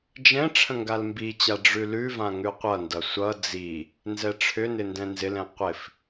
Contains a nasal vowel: yes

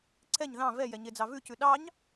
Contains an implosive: yes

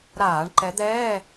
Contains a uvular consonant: no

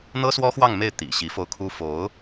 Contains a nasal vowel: no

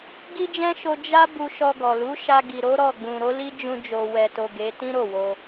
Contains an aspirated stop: no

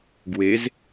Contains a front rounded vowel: no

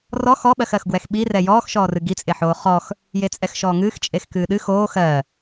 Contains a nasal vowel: no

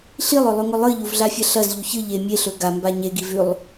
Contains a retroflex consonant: no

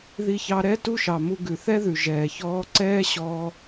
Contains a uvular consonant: no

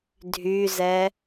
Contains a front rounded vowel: yes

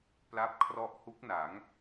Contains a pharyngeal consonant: no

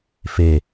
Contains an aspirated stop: no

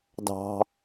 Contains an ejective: no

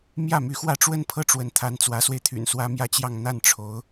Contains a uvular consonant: no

